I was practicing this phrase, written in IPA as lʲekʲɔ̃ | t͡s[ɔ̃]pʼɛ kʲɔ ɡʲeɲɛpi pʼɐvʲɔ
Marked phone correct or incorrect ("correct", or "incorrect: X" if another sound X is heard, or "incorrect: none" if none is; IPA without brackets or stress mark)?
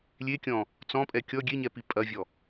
correct